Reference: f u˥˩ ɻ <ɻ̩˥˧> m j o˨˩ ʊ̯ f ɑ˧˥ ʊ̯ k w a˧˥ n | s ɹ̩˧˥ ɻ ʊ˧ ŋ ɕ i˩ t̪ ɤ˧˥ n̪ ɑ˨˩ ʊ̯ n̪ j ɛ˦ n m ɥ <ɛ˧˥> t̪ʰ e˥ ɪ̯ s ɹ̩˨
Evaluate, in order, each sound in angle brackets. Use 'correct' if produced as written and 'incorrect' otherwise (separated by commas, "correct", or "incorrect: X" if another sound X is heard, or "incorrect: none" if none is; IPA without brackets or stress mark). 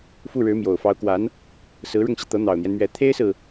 incorrect: ɻ̩˧˥, correct